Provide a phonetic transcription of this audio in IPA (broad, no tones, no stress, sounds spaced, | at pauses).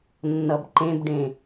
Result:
nː ʌ b ǃ ẽ b ɖ ẽ